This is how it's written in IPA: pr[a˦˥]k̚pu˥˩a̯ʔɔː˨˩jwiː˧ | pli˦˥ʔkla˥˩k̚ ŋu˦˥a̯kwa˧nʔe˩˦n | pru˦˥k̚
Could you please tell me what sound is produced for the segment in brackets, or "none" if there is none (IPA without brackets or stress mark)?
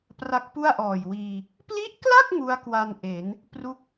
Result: a˦˥